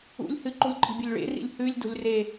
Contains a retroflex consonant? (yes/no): yes